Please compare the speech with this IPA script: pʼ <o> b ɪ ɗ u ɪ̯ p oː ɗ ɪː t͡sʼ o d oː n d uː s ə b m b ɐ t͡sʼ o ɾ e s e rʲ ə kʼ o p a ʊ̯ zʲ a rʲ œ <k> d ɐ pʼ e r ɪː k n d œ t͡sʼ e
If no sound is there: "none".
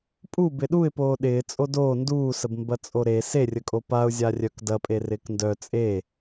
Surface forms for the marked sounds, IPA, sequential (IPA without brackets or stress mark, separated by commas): u, k